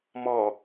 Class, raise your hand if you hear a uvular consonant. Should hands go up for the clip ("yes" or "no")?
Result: no